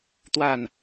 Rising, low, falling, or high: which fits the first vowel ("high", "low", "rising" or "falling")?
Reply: falling